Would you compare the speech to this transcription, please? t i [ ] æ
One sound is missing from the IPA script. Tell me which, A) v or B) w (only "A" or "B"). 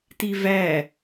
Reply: A